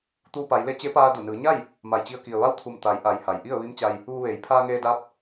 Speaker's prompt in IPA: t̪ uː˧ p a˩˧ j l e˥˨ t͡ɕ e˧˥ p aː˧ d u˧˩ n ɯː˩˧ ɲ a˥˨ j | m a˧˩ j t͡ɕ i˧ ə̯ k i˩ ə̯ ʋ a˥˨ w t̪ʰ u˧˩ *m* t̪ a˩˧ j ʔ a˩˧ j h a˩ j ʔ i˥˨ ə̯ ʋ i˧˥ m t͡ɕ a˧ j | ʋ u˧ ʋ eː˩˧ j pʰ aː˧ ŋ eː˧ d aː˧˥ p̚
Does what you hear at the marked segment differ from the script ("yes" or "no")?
no